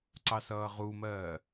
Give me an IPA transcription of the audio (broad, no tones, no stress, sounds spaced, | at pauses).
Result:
ǀ ɑ s ʌː ʁ u m ɜː